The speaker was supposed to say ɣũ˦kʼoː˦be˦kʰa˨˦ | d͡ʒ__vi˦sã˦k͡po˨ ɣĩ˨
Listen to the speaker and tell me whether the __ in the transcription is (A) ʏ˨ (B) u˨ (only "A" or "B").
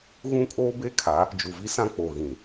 B